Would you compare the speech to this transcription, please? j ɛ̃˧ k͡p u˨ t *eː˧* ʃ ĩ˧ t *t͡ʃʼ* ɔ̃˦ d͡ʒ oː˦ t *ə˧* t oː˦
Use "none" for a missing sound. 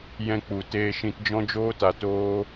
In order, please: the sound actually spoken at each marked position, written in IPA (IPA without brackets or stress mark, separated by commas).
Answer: eː˧, d͡ʒ, a˧